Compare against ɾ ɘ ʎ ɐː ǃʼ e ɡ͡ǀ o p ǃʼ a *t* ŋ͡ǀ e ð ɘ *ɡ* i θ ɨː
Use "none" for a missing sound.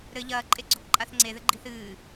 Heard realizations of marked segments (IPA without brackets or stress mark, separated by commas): θ, ɡ͡ǃ